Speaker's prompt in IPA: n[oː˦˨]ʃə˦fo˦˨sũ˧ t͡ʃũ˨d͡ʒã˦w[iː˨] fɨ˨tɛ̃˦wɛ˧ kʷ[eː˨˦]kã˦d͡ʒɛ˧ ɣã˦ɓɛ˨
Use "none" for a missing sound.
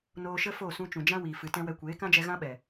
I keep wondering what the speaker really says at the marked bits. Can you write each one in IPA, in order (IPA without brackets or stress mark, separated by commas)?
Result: oː˧, iː˨, eː˨˦